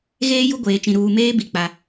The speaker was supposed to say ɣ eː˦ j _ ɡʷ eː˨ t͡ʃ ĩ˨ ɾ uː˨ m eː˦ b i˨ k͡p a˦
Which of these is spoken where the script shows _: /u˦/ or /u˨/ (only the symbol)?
u˦